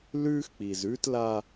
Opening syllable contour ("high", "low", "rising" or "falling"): high